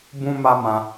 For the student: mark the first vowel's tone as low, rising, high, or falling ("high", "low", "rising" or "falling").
high